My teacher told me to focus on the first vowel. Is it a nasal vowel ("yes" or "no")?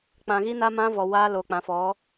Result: yes